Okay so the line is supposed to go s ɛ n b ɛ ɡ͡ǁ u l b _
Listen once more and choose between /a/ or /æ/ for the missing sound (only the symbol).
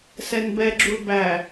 æ